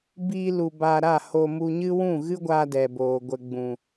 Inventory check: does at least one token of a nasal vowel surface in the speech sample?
yes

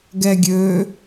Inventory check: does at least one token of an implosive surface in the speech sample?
no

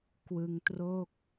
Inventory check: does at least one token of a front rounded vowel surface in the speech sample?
no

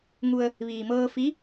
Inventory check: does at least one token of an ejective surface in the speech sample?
no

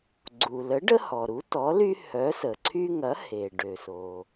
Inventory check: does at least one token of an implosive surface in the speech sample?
no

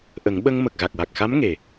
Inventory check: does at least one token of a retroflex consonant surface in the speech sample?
no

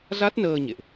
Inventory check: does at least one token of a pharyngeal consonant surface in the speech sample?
no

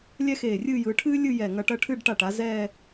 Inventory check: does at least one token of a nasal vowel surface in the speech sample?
no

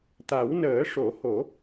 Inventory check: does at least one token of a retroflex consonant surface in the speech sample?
yes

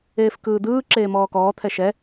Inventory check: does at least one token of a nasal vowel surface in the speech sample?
no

